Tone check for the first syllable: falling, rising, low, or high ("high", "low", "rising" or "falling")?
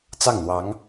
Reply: falling